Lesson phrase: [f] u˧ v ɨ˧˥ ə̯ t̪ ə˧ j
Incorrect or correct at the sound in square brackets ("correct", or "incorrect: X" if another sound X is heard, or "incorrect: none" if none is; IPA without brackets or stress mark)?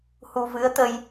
incorrect: h